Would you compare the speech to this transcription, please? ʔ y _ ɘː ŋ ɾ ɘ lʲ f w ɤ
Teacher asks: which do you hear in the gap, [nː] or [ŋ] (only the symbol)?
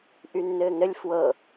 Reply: nː